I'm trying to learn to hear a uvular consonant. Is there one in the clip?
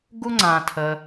no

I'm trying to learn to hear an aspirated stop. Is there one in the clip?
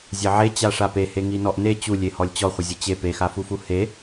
no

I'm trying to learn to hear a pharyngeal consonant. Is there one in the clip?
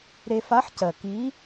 yes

